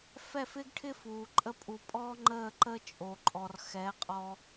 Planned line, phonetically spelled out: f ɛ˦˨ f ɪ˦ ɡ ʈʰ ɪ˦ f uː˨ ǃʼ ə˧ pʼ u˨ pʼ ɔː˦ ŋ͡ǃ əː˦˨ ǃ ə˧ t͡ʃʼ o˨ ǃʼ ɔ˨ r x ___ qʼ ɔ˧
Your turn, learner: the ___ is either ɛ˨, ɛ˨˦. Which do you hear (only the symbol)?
ɛ˨˦